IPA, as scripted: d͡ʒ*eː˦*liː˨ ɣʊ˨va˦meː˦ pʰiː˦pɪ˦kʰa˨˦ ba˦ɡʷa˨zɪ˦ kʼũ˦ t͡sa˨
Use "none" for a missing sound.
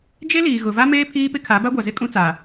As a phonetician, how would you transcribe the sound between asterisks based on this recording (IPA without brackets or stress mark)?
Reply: e˦